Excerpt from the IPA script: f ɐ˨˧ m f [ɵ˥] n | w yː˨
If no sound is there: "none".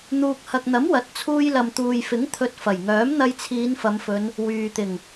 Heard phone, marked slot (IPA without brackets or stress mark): ɵ˨˧